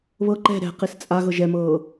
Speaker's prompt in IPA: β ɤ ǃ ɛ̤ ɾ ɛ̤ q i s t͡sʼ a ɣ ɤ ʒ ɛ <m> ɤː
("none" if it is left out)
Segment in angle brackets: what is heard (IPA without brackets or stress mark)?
m